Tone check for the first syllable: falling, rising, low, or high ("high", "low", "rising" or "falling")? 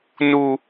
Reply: low